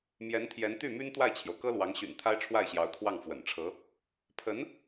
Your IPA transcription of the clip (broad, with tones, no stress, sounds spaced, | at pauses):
m j ɛ˧˥ n t̪ʰ j ɛ˧˥ n t̪ y˥˩ m y˥ n t̪ w a˥˩ ɪ̯ t͡ɕʰ j o˩ ʊ̯ k ɤ˥ l w ɑ˧˥ ŋ ɕ y̰˨˩ n t̪ʰ a˥ ɪ̯ ʈ͡ʂʰ w a˥˩ ɪ̯ ɕ j ɑ˧˥ ʊ̯ t̪ʰ w ɑ˥˩ ŋ f w ə̰˨˩ n ʈ͡ʂʰ ɤ˧˥ | pʰ ə˧˥ n